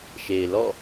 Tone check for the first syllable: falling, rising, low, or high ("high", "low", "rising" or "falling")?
low